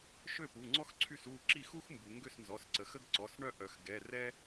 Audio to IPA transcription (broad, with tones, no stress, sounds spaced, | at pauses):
ʃ ø˥˩ p u˩˧˩ ŋ͡ǀ ɔ˥ x ǀʰ y˥˩ s u˥˩ ǁ i˥˩ x u˥ x m b u˩˧ ŋ ɡ ø˥˩ s n z ɔ˩˧˩ s ǀ ə˩˧ x ə˥ ɡ ǀ ɔ˩˧˩ s ɳ œ˥˩ ʔ œ˩˧ x ɡ ɛ˩˧˩ r ɛ˥